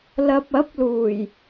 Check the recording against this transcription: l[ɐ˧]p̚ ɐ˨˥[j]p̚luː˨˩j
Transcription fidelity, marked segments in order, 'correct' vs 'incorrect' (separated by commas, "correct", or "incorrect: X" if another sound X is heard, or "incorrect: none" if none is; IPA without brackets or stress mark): correct, incorrect: none